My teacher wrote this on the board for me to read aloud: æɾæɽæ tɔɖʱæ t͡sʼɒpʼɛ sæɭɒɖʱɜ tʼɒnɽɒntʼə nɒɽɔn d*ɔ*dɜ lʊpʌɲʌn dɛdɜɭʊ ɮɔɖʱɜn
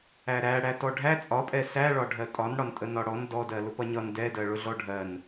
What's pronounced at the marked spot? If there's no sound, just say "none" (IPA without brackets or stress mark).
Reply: ɔ